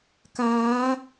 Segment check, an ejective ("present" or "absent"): absent